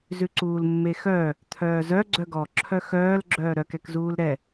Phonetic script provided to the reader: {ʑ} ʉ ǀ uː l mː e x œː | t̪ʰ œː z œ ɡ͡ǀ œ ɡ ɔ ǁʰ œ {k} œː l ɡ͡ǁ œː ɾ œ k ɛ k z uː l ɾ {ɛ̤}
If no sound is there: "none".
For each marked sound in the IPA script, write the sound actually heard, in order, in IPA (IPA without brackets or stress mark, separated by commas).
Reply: z, x, ɛ